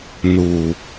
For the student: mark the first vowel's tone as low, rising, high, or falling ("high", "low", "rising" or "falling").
low